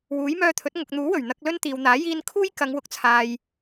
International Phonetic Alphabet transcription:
w uː˨˥ j m œː˧ t̪ʰ ɵ˨˥ t̚ ŋ ʊ˨ k̚ n̪ uː˨˥ w ɵ˨˩ ɥ n̪ ɐ˧ k̚ l ɵ˥ n t̪ iː˨ w n̪ aː˨˥ j iː˧ n kʰ uː˥ j k ɐ˨˧ ŋ w ʊ˨˥ k̚ t͡sʰ aː˨ j

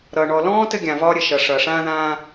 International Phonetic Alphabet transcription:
ɾ ʌː˨ ɳ ɔ˨ l ɔ̃ː˦ t ɘ˦ ɡʲ ã˨ v ɒː˦ ɾʲ ɘ˨ ʃ ʌ˨ ʂ ʌː˨ ʂ ãː˦ ð ãː˦

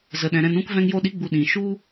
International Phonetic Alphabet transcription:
z ə˨ ɗ ɛ̃˨ ɾ ɛ̃˧ n ũ˦ k v ɛ̃˧ ŋ j o˧ ɗ i˨˦ ɡ͡b u˨ ɗ ĩ˨ ʃ u˦

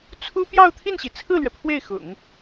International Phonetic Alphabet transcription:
t͡sʰ u˥ p j ɑ˥˧ ʊ̯ t̪ʰ i˥˩ n ɕ i˩ t͡sʰ ɹ̩˥˩ l ɥ ɛ˩ pʰ w e˥˩ ɪ̯ x ʊ̰˨˩˦ ŋ

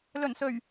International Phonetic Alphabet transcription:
l ɵ˨˩ n s ɵ˨˩ ɥ

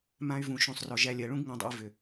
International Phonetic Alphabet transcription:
m ã˧ y̯ v ũ˨ ʃ ũ˨ sˤ r ɔ˨ ʒ æ˧ lʲ ɜ˨ ɭ ũ˦ ɡ ŋ ã˧ dˤ ṵ˧ i̯ v ʏ˨

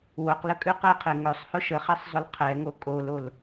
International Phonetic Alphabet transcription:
w o q l ə kʼ ʉ q ɛ qʰ e ŋ ɵ sˤ h ʊ ʃ ə χ e sˤ zˤ ʊ l qʰ ɛ ŋ o kʼ o l o l

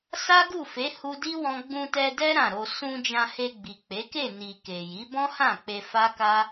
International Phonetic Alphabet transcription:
s a˦ ɡ u˦˨ f e˨˦ h u˧ d i˦ w ɔ̃˧ ɡ͡b ũ˧ t ɛ˧ d ɛ˦ ɾ ã˦˨ ɾ o˧ s ũ˧ d͡ʒ ã˧ h e˧ ɡ͡b i˨ k͡p e˨˦ k e˦˨ n i˨ k e˨ j i˨˦ b ɔ̃˦ h ã˦˨ k͡p e˧ f a˦ k a˦

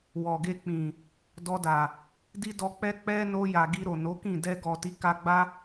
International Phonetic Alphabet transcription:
w ɔ˨ ɡ e˧ k͡p ĩ˨ | d ɔ˧ d a˨ | d i˦ d ɔ˧ k͡p ɛ˦ k͡p ɛ˦ n o˧ j a˨ ɡ i˧ ɾ o˨ n o˨˦ k ĩ˦˨ d ɛ˧ ɡ ɔ˨ t i˨˦ k a˧ ɡ͡b a˦

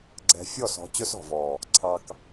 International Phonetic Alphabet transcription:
ɡ͡ǀ ɛ̤˧ fʲ ɔ˦˨ s ɔ̤˨˦ t͡ɕ ɵ˦ s ɔ̤˨ v ɔ˨ | ǀʰ ɑ˧ k

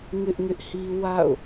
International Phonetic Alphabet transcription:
ŋ ɪ˦ ʔ ŋ ɪ˦ ʔ h i˦ w a̰˦˨ ʊ̯

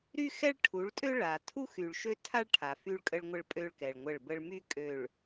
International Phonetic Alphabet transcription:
ɾ y˦ x ɛ˦ ɭ ʈʰ u˨˦ ɭ tʼ ø˦ ɭ a˨ tʰ u˦ x y˨ ɭ ʃ ø˦ tʰ a˦ ɭ ʈʰ a˨ f y˦ ɭ kʼ ə˦ ɭ ŋʷ ə˦ ɭ pʼ ø˦ ɭ k ɛ˨ ɭ ŋʷ ə˦˨ ɭ b ə˦ ɭ m y˦ kʼ ø˨ ɭ

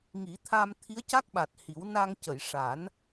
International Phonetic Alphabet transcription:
ŋ i˨˩˦ t̪ʰ a˧ m t̪ʰ i˧˥ ə̯ c a˦˥ k̚ ɓ a˨˩ t̚ h i˨˩˦ w n a˧ ŋ c ə˨˩˨ j ʂ a˨˩˦ n

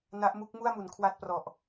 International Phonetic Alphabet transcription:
n a˦˥ ʔ m u˦˥ k̚ m u˥˩ a̯ m u˩˦ n kʰ w a˥˩ t̚ p r ɔ˨˩ ʔ

